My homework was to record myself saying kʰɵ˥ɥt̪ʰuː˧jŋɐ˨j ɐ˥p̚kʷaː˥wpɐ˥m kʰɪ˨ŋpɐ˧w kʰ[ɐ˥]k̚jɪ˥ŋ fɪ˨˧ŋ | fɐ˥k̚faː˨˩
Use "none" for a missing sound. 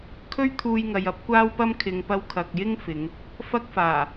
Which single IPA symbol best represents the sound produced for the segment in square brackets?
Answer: ɐ˨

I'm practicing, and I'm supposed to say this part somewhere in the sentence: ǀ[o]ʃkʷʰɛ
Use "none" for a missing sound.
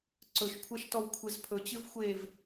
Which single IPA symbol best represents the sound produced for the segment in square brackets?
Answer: ɵ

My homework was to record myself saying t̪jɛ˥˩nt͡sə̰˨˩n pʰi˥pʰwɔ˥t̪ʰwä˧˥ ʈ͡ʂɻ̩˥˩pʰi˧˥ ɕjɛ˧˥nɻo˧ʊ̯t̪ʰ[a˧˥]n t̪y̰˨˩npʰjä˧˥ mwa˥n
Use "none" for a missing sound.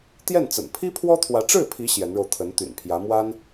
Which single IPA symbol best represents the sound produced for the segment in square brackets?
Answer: ə˧˥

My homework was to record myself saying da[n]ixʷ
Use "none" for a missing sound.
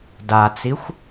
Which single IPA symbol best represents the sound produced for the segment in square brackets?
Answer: t͡s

